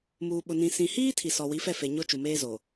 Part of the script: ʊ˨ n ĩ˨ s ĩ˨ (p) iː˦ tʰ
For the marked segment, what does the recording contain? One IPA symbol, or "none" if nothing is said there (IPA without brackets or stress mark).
h